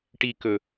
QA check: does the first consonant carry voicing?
no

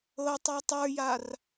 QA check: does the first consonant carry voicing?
no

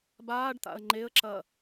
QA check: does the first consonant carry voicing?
yes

